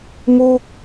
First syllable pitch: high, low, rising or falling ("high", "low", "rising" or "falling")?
falling